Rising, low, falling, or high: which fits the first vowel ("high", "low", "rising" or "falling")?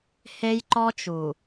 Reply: high